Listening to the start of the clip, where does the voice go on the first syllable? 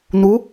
rising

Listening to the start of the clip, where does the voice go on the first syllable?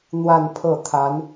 falling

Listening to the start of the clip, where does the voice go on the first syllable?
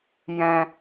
low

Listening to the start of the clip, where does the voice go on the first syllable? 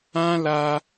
high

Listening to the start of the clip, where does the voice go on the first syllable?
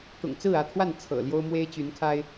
low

